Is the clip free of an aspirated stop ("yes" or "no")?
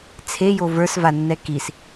no